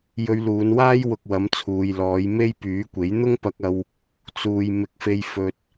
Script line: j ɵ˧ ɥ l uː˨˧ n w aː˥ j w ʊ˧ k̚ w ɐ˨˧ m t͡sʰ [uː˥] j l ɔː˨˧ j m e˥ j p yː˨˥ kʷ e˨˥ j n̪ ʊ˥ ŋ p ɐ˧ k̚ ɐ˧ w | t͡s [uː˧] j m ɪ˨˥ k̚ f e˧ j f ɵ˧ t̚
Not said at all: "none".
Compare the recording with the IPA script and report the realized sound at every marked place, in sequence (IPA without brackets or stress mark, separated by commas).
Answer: uː˨, uː˨